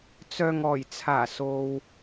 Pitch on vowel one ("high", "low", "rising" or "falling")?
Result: low